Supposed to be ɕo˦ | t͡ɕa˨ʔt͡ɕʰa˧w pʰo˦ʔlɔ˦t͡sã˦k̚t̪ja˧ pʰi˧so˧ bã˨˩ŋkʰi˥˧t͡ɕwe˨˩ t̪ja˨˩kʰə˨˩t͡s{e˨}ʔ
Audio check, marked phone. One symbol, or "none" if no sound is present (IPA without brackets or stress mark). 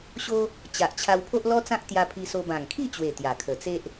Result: e˦